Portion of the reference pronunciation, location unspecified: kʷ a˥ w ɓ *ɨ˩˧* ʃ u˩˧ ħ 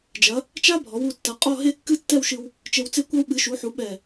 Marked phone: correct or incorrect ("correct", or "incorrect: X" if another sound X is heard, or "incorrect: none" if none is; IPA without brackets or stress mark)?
correct